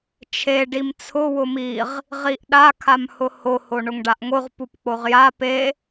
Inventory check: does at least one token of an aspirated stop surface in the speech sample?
yes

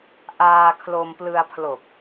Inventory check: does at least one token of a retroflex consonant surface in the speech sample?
no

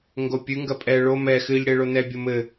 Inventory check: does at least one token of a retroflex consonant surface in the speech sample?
yes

